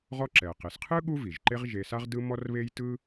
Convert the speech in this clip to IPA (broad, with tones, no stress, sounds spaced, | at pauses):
ʁ ɔ˦ ǁ ɛ˩ ə̯ q e˩ s qʰ ɯ˥ ɠ u˥ v i˩ ʒ ǃ e˦ ʁ ʒ e˨ s a˦ ʁ d ɯ˦ m ɔ˥ r β e˥ j t ɯ˥